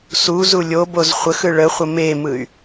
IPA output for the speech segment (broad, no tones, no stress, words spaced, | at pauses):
su zulʲoboz χʷəxɯ ɭəχʷə memɯy̯